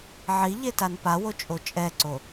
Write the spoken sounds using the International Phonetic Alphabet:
ʕi ʎetanpawo t͡ʃʼot͡ʃʼɛǀo

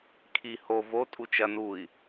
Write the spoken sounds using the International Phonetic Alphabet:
kʰi ho vo tʼut͡ʃɐ nui̯

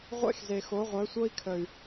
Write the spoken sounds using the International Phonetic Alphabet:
ʁʷḛ˦xze˨xo˨˦ ʁʷœ˨˦sʷɤ˦i̯kʰə˨y̯

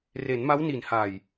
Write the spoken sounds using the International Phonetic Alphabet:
re˩˦nma˦˥wni˨˩nha˨˩j

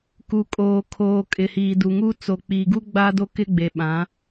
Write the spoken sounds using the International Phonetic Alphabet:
ku˨kʼoː˨ kʰoː˨kʼɪ˨ hiː˨du˨ŋu˦ t͡so˨k͡piː˨ɡu˦ ɡ͡ba˦do˦kɪ˦ɡ͡be˨ ɓã˨˦

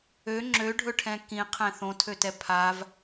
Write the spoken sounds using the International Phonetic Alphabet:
ø ŋ͡ǁøɖʱɵʈʰɛ̃ kĩqʰɛ̃ θõtʰøtɛ pʰav

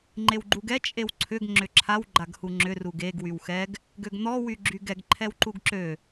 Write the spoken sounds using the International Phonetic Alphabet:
ŋ͡ǃewɡ͡ǃuɡɛ t͡ʃʼewǀʰʏɡ ŋ͡ǁʏǁʰaw ɡ͡ǃaɡhuŋ͡ǁʏ ruɡeɡ wywxɛɡ | ɡøɡn̪ɔ wyɡ͡ǁyɡɛɡ ǃʰɛwǃuɡǁø

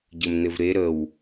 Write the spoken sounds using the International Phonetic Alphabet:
ɟɘmnɘvɾe ɾəw

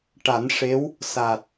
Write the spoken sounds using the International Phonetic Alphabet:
ʈa˨˩˦nʂe˧˥w | sa˨˩t̚

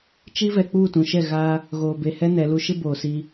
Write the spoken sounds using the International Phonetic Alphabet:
t͡ʃi˦ vɛ˨k͡puː˦˨tũ˨ʃɛ˦˨ ɣaː˦ | ɣoː˨be˨hɛ˦ nɛ˨˦lu˦ ʃɪ˦ boː˨si˦

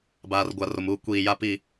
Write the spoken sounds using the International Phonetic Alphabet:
baː˨rɡʷa˨ro˨muː˦ kʷiː˨ja˦pi˦˨

